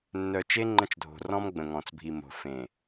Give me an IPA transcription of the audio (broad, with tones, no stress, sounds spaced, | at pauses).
nː œ˨ t͡ʃ e˦ ŋ͡ǃ ə̃˦ t͡ʃ dʱ o̤˨ r ɔ̃˦ m ɡ͡b ə̃˨ ŋ ɔ̃˨ t͡s bʱ i˨ m o̤˨ f ẽ˨